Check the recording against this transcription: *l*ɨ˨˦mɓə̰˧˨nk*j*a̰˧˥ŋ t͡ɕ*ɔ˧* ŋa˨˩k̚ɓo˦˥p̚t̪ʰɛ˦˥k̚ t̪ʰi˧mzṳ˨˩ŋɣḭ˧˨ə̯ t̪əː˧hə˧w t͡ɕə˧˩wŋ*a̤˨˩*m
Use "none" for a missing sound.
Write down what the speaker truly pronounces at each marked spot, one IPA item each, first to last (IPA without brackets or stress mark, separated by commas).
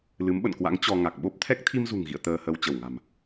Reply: l, w, ɔ˧, a̤˨˩